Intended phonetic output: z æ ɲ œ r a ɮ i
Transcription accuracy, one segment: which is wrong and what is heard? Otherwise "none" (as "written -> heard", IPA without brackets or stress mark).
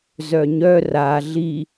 æ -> œ